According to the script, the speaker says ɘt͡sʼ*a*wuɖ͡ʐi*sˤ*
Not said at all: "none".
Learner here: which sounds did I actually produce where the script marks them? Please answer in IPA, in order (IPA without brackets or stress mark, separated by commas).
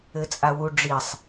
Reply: a, sˤ